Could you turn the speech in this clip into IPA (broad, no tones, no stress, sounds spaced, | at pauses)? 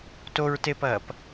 t o ɹ t e p ɐː p